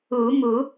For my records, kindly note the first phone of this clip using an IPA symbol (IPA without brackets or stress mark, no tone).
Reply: u